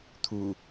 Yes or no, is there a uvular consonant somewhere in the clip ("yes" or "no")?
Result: no